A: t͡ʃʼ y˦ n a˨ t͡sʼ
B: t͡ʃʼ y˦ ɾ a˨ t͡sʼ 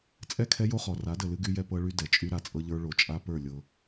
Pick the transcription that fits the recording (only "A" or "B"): B